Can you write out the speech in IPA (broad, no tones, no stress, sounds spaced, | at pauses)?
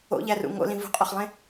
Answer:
o̰ ʎ æ r ṵ ŋ o̰ l ĩ v ṳ qʼ o χ lˠ ẽ